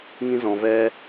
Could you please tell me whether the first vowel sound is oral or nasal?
nasal